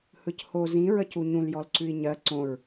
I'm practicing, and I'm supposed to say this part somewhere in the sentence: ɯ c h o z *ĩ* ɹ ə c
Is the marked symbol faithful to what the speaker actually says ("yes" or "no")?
yes